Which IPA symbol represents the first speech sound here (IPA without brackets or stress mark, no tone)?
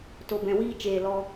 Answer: t